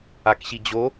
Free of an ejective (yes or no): yes